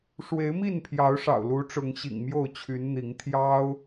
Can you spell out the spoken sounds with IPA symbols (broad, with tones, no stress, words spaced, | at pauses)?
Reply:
ʂwe˨˦ɪ̯mi˥˨npʰjɑ˨˦ʊ̯ʂɑ̰˨˩ʊ̯ lu˨˦ʈ͡ʂʊ˨˦ŋɕḭ˨˩ŋ mjo˥˨ʊ̯t͡ɕʰy˨˦nn̪i˨˦ŋ t̪ʰjɑ˦ʊ̯